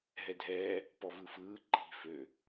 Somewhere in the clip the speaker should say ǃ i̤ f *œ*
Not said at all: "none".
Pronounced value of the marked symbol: ø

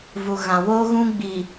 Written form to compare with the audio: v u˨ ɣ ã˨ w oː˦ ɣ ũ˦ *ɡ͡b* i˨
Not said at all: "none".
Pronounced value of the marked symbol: ɡ͡b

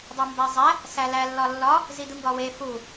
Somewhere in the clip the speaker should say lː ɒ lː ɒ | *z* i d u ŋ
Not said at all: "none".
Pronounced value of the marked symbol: z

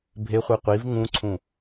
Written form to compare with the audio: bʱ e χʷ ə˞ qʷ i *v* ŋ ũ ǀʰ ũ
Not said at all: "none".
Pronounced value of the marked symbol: v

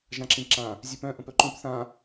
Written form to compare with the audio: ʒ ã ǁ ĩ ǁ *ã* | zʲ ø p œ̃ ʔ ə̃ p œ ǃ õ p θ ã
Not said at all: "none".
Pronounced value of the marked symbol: ã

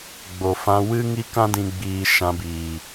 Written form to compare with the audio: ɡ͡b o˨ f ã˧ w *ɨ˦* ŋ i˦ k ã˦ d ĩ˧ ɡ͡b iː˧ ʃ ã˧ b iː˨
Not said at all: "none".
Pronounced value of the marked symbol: ɨ˦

